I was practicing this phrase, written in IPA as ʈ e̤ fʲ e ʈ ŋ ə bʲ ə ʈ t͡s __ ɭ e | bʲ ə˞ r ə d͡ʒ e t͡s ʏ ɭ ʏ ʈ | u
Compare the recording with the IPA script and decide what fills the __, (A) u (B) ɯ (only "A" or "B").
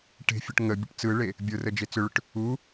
B